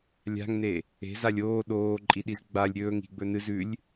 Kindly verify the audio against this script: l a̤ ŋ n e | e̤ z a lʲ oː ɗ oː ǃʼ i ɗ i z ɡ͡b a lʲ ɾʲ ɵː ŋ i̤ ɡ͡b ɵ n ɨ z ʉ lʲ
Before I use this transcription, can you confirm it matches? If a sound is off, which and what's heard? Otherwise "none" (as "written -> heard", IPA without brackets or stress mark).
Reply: l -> lʲ